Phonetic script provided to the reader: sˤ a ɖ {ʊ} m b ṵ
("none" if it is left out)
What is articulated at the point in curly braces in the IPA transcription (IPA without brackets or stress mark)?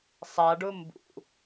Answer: ʊ